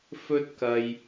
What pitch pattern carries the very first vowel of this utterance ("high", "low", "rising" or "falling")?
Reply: high